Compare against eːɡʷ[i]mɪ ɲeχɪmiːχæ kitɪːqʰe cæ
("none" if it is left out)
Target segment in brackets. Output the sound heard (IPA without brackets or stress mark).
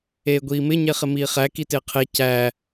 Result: iː